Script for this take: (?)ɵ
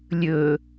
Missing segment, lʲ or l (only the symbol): lʲ